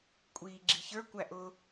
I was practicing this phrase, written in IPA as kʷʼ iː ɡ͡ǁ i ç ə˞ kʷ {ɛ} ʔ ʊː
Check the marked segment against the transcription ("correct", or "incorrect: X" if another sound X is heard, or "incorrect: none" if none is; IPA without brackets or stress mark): incorrect: æ